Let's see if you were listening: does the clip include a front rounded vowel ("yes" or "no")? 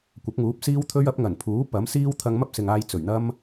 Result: no